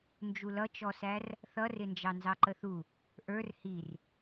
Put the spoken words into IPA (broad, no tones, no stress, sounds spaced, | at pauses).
n d͡ʒ u l ʌ t͡ʃ ɔ s æ r | θ ʌ r ɪ n d͡ʒ ɑ n z ɑ ǃ ə θ u | ʔ ə˞ r h i r